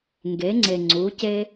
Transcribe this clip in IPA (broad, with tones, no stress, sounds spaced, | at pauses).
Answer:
ŋ ɡ e˩˧ ŋ͡ǀ e˩ ŋ͡ǀ u˩˧ c e˧